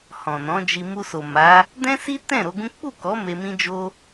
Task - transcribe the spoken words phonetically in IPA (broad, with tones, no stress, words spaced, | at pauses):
hɔ̃˨nɔ̃˨˦d͡ʒi˧ mu˧so˨ma˨˦ | dɛ̃˦si˦tɛ̃˦˨ ɾo˨˦ɡũ˦ k͡pu˦˨kɔ˨˦ me˧mĩ˦d͡ʒo˦